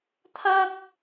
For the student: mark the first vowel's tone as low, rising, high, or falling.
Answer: high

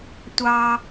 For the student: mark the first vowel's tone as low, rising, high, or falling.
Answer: high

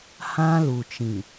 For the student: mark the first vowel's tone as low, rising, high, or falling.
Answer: high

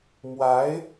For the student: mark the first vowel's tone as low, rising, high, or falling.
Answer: rising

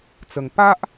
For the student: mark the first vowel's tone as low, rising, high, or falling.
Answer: low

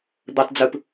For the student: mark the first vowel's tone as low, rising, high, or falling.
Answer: low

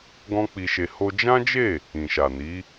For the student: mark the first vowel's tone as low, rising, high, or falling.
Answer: high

